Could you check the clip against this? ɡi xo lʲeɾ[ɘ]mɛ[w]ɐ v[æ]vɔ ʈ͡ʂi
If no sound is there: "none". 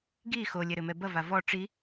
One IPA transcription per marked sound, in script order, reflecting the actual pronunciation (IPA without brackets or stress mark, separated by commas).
ɘ, b, a